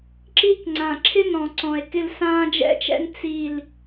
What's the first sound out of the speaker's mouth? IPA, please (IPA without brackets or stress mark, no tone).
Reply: ǁ